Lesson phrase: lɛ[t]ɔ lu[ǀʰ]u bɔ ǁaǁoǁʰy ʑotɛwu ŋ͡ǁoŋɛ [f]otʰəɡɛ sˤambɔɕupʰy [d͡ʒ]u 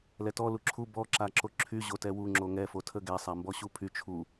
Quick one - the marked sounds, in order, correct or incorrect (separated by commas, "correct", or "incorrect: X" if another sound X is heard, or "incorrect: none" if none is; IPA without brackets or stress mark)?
correct, incorrect: ǁʰ, correct, incorrect: t͡ʃʰ